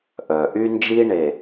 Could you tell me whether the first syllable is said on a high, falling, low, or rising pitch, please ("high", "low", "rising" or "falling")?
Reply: low